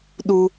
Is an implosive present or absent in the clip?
present